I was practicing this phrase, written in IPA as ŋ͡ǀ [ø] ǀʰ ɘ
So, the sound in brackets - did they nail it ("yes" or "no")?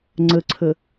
no